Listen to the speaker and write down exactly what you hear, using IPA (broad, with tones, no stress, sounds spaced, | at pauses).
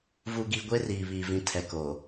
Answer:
v u˨ ɡ i˨ ɡʷ e˦ r iː˨ β i˨ v ĩ˨˦ tʰ ɛ˨ k oː˨